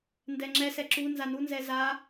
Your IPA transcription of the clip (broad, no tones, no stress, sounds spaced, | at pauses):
n d ɛ ŋ͡ǁ ɛ s ɛ ǁ u n z a n u n z ɛ z a